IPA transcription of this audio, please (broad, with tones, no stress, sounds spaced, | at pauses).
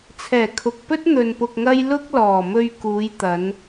t͡sʰ ɛː˨˩ kʰ ʊ˨ k̚ p ɵ˥ t̚ n̪ ɵ˧ n p ʊ˧ k̚ ŋ ɐ˥ j l ʊ˥ k̚ l ɔː˨˩ m ɵ˧ ɥ k uː˨˧ j t̪ ɐ˨˧ n